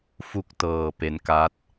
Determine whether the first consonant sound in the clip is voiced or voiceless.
voiceless